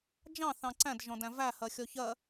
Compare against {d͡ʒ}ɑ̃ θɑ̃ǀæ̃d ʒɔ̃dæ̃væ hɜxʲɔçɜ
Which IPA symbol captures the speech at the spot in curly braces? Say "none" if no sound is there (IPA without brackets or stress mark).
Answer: d͡ʒ